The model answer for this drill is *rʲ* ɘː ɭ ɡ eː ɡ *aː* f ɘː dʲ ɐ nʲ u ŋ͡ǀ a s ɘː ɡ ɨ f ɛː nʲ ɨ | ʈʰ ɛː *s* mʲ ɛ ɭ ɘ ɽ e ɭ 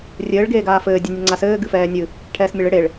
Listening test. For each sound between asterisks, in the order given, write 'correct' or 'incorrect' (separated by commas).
correct, correct, correct